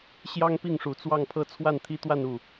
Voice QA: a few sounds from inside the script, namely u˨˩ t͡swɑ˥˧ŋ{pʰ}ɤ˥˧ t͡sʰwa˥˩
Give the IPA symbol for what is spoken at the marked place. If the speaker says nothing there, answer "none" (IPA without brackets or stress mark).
pʰ